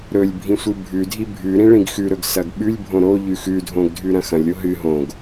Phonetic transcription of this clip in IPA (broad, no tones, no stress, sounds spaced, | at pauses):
ɾ ɵ lʲ bʱ ĩ sʷ ɨ bʱ ʉ dʱ i bʱ ʉ ɾ ĩ ɭ ĩ ɡ x ʉ ɾ ɵ ɡ s ɐ ɡ ɓ ʉ lʲ bʱ õ ɾ o ʎ ʉ x ʉ dʱ õ ɡ dʱ ʉ ɾ ɐ̃ x ɐ̃ lʲ o ɦ ɨ ɦ õ ɡ